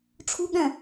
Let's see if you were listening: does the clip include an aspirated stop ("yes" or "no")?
yes